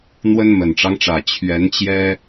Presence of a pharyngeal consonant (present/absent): absent